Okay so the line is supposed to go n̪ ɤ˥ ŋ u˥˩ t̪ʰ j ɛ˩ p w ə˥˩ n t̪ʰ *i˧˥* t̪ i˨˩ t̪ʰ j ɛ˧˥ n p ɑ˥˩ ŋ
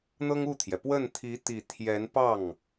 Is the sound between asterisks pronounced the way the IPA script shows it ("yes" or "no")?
yes